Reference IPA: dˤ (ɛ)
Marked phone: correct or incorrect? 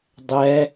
correct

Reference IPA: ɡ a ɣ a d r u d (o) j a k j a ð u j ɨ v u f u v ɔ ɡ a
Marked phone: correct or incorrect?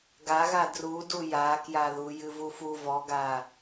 incorrect: u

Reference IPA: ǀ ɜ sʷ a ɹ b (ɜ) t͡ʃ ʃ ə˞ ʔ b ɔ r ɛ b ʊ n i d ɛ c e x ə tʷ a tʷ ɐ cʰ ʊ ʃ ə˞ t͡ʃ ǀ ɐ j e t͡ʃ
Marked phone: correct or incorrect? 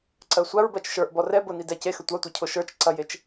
correct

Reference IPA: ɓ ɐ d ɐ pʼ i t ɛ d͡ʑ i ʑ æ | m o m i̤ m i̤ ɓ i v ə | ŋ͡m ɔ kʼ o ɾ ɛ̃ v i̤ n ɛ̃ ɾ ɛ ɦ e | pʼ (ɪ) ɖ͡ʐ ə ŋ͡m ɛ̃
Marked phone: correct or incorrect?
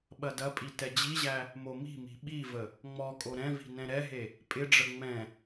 correct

